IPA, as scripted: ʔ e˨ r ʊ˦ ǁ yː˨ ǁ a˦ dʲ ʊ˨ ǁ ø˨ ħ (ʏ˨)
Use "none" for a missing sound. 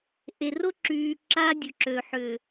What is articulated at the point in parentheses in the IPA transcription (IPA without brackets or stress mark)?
ʏ˨